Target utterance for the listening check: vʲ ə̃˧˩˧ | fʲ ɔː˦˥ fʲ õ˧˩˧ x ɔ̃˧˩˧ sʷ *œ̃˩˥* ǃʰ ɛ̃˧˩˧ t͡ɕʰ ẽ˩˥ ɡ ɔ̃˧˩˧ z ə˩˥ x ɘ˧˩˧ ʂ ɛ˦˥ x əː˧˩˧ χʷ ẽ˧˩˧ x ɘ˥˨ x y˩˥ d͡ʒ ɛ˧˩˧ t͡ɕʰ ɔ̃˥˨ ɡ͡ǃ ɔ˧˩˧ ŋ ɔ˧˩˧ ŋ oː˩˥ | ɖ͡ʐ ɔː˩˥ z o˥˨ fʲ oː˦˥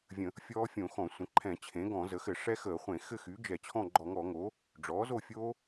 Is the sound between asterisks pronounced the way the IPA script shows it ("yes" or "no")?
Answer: no